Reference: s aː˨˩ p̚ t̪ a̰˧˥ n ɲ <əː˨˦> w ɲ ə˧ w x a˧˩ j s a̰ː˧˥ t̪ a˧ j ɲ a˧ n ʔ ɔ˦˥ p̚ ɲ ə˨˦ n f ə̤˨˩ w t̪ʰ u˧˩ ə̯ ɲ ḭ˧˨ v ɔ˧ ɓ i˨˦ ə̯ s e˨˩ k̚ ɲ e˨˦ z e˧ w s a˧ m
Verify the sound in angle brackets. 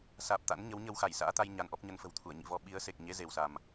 incorrect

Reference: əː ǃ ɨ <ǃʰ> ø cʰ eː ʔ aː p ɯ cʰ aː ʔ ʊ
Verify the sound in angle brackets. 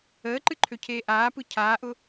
correct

